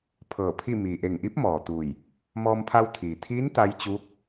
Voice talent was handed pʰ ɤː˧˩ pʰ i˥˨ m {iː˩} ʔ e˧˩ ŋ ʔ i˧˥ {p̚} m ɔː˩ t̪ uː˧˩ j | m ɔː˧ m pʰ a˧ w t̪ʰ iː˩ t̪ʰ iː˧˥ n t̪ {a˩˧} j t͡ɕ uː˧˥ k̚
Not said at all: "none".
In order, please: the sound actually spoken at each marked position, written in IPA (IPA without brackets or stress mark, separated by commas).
iː˩, p̚, a˧˥